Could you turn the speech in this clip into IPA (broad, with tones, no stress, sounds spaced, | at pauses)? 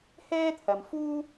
h ɛː˥ t̪ʰ ɐ˨ m f uː˥